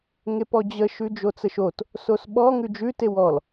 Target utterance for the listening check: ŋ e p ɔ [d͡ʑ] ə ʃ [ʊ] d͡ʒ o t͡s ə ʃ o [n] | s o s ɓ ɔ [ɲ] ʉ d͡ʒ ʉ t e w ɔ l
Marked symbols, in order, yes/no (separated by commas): yes, no, no, no